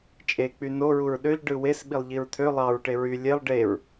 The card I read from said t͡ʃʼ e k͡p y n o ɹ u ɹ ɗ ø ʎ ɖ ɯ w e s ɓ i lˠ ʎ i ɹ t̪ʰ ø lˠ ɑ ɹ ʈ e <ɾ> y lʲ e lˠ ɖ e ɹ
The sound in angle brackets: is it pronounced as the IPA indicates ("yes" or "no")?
no